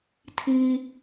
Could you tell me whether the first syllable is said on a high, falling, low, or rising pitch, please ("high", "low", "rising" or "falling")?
high